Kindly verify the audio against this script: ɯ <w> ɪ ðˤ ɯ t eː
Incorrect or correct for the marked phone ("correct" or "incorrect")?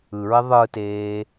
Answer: incorrect